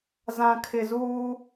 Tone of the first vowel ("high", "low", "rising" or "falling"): low